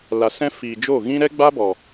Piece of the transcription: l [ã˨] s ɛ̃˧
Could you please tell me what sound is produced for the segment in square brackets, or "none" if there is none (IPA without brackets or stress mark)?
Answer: a˨